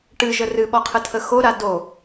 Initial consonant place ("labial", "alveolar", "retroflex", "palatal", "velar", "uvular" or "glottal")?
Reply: retroflex